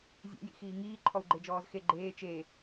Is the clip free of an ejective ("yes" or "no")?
yes